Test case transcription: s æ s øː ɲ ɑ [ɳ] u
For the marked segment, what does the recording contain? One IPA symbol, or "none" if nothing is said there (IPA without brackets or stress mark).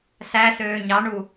ɳ